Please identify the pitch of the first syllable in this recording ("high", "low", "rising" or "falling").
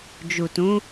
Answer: low